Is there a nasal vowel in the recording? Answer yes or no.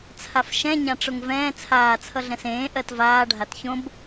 yes